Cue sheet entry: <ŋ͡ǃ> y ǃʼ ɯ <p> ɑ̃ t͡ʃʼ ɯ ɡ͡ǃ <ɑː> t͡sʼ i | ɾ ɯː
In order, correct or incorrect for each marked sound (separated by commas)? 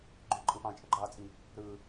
incorrect, correct, correct